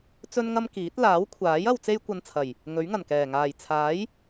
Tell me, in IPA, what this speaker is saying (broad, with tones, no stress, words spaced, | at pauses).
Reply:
t͡sɵ˥nŋɐ˥mkiː˨˥t̚ laː˨˥wkʷʰaː˨˥j ɐ˧wt͡se˥jkʷɐ˧nt͡sʰɐ˨˩j | ŋɵ˨˥ɥŋɐ˨˩nkɛː˨˩ ŋaː˨˩jt͡sʰaː˨˥j